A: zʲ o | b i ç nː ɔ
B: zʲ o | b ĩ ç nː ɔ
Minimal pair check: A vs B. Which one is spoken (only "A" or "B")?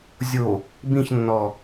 B